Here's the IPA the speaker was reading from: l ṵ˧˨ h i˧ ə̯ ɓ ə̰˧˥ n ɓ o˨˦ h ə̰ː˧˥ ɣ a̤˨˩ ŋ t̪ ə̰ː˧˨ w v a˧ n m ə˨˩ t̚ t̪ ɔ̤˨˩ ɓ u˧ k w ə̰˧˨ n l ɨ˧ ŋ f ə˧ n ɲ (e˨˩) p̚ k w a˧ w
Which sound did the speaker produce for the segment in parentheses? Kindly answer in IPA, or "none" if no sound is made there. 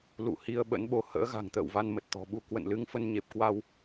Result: e˨˩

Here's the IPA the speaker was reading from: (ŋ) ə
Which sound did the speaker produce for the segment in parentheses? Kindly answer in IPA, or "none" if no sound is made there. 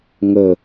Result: ŋ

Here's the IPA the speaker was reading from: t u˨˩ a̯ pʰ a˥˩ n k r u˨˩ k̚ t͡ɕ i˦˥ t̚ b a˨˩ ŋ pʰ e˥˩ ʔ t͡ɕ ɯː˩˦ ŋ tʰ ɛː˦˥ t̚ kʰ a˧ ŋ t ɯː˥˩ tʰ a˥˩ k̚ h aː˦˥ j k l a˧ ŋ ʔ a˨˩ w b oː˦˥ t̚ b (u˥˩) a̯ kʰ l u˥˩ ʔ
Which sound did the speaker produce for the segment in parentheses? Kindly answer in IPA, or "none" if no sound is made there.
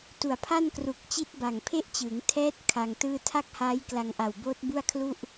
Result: u˥˩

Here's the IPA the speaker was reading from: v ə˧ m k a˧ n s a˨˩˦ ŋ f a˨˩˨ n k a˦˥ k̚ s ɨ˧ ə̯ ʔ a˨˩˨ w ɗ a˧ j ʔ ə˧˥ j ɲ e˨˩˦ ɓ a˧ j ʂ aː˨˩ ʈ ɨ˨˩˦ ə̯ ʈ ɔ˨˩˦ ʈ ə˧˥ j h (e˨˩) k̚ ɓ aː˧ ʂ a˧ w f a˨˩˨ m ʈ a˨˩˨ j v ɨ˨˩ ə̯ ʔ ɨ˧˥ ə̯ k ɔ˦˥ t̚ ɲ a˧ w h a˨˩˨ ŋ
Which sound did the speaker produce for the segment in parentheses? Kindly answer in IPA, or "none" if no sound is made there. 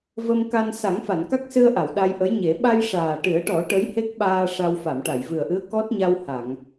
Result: e˦˥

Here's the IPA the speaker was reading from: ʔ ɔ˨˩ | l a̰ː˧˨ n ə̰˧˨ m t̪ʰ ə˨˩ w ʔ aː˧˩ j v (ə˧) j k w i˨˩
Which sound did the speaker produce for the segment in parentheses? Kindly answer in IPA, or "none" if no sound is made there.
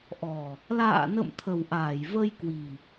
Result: ə˧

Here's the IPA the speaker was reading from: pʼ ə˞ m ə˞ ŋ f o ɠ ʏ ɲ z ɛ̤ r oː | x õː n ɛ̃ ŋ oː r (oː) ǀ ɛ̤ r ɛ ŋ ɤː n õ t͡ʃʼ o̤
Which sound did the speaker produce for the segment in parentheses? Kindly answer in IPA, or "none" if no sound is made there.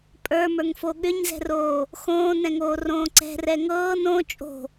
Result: õː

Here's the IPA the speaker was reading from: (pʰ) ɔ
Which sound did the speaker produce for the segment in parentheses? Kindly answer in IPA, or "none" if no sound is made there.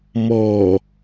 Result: m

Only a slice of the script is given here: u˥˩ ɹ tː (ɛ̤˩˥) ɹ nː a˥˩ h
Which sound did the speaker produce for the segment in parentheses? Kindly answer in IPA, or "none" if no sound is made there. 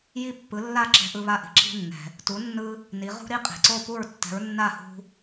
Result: ɛ̤˩˥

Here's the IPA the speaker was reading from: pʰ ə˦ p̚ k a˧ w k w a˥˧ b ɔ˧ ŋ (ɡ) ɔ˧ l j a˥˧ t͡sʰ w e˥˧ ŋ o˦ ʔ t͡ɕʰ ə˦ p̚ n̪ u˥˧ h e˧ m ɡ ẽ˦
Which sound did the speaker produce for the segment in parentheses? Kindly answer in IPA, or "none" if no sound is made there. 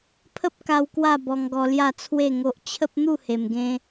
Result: ɡ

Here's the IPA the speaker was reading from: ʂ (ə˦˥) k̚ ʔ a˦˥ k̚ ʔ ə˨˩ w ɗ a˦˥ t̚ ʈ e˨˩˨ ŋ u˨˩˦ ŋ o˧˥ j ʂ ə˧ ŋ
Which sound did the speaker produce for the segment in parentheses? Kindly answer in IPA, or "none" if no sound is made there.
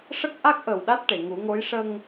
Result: ə˦˥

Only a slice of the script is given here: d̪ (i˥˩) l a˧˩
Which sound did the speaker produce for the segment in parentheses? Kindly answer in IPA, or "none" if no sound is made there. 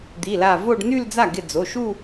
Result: i˩˧˩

